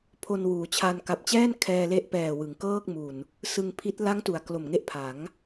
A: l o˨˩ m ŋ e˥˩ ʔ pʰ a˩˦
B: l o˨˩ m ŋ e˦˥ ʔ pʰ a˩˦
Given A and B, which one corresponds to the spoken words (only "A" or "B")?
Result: A